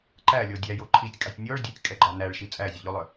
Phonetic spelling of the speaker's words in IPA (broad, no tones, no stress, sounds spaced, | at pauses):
ǃ æ lʲ ɔ dʲ æ j o ǃʰ i tʲ kʼ ɑ tʲ nʲ ɔ ɭ dʲ ø tʲ kʼ ɛ ɡ͡ǃ ɑ n æ ɭ ʃ i t͡sʼ æ zʲ ø ʎ o lˠ œ